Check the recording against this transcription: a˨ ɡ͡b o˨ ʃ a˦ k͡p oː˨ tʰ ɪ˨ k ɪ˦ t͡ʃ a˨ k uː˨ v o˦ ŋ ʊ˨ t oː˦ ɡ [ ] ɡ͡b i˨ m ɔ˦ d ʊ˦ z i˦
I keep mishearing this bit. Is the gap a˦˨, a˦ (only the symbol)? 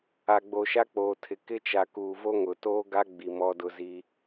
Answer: a˦